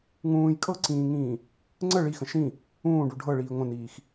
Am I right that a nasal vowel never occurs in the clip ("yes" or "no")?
no